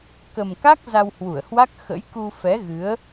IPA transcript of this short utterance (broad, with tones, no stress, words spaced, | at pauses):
kə˨˩mka˦˥k̚ za˧whwu˧˩ə̯hwa˦˥k̚ xə̰˧˥jku˧fɛ˨˦ɣɨ˨˦ə̯